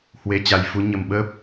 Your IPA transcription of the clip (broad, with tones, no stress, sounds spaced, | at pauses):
h w e˨˦ t͡ɕ a˨˩ j f u˨˦ ɲ ə˨˩ m ɓ əː˦˥ p̚